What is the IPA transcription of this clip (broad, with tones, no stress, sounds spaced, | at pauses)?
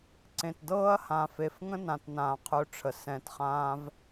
ǀ ẽ˨ t d ɤː˦ ɐ̯ h ã˨ f e˨ f ŋ ə̃˦ n ã˨ t n ãː˨ qʰ ø˧ ʈ͡ʂʰ ə˨ s ɛ̃˧ t χ ãː˦ v